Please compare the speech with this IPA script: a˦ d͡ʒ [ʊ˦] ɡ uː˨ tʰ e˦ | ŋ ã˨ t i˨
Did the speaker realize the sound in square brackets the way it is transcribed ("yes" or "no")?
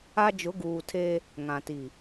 no